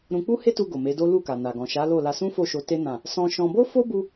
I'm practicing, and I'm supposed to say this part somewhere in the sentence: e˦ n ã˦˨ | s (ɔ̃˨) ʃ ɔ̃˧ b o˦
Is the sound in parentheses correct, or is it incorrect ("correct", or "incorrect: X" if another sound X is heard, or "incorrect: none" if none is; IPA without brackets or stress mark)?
incorrect: ɔ̃˧